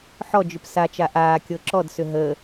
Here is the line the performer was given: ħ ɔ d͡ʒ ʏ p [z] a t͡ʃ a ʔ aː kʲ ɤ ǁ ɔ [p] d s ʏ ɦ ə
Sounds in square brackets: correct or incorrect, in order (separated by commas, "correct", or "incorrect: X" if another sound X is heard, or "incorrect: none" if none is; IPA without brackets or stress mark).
incorrect: s, incorrect: none